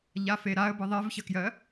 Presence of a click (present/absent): absent